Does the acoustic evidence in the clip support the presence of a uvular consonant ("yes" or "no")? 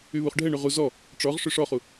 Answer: yes